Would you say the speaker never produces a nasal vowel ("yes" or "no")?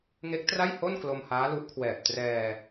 yes